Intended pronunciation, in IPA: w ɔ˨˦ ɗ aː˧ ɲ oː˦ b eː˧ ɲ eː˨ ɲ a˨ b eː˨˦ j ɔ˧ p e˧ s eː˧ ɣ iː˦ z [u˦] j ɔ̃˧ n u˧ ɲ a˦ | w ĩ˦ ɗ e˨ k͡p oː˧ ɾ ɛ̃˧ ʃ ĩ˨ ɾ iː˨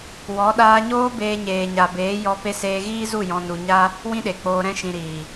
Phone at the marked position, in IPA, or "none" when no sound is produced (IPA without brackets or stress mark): u˦˨